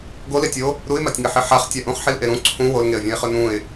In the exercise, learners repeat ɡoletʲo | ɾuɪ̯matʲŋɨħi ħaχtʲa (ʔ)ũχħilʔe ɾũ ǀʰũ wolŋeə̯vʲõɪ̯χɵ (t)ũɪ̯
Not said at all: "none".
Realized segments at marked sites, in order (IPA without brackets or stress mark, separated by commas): ʔ, n